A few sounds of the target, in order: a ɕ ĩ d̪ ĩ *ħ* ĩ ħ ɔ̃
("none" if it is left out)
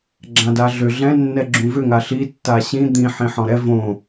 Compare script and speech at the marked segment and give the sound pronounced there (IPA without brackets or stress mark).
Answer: ħ